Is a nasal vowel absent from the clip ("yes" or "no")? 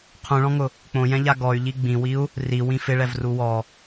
no